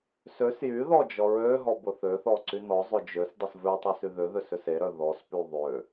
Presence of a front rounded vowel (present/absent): present